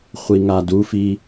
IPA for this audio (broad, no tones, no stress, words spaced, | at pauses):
χʷiŋadufi